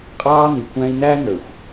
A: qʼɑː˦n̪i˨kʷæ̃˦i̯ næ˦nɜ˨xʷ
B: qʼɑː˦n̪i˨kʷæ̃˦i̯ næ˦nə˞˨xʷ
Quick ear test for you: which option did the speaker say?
B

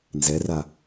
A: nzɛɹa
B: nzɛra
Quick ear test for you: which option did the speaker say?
B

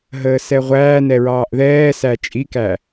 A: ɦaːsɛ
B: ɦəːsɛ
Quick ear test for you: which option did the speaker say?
B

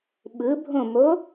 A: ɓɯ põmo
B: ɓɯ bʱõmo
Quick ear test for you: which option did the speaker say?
B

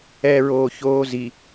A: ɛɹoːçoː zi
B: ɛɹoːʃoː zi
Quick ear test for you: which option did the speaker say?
A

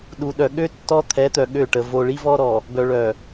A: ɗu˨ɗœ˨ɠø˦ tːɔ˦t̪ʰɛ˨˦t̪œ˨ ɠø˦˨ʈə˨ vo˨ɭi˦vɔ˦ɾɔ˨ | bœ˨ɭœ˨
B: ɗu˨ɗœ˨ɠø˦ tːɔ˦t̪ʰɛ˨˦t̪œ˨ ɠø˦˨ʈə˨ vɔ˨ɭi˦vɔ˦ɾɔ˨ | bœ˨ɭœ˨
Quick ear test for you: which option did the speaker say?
A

